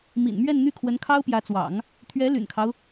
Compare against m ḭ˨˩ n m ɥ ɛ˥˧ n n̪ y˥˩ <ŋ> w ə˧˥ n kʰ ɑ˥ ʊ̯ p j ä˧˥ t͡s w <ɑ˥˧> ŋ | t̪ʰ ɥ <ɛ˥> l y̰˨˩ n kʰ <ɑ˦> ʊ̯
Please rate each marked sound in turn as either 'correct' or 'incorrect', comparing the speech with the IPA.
incorrect, incorrect, incorrect, correct

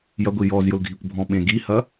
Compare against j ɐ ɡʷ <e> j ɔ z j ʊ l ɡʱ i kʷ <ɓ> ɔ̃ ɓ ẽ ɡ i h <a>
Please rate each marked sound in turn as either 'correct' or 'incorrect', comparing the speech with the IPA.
incorrect, incorrect, incorrect

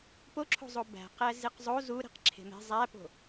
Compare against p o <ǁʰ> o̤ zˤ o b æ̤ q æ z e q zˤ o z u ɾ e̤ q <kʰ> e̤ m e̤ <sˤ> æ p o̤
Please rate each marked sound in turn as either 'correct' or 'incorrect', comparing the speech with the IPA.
correct, incorrect, incorrect

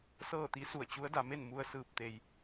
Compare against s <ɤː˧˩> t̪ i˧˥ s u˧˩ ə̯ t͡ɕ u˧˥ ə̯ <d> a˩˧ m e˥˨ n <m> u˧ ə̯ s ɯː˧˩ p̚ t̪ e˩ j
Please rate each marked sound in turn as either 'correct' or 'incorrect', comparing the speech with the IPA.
incorrect, correct, correct

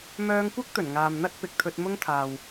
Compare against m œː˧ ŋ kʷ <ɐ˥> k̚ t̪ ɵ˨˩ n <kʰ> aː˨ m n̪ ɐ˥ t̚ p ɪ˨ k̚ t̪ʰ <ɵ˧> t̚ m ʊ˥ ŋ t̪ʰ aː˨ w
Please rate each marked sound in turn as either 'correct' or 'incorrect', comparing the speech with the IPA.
correct, incorrect, correct

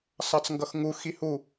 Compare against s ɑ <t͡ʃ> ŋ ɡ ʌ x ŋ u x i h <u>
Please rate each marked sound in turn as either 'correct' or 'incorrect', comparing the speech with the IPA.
incorrect, correct

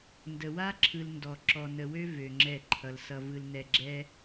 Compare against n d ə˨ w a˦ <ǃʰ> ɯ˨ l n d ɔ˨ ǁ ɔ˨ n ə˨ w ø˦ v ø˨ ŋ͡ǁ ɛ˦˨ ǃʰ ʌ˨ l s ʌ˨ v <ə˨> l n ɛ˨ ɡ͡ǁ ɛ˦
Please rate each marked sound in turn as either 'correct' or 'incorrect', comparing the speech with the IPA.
incorrect, incorrect

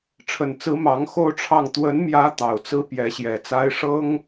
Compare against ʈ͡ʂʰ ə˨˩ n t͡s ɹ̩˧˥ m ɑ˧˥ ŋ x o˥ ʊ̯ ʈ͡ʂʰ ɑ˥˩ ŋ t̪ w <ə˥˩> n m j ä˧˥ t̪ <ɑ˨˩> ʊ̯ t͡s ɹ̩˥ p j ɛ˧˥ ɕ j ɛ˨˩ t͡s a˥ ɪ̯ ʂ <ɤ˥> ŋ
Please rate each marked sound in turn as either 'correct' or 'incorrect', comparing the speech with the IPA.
incorrect, correct, correct

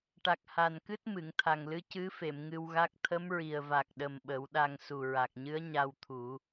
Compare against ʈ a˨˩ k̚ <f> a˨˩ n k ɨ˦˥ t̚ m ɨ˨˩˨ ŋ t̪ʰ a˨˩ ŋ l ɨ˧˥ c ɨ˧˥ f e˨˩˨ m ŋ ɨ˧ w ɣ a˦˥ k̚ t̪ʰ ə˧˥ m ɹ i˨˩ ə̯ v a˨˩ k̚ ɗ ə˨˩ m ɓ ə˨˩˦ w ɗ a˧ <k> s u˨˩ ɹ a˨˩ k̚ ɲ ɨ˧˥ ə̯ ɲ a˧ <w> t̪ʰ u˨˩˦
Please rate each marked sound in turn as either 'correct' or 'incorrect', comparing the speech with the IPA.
incorrect, incorrect, correct

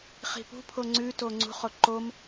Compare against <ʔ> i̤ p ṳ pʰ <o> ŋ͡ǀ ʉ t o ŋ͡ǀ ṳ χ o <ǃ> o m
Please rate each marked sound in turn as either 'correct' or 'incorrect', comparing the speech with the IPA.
incorrect, correct, correct

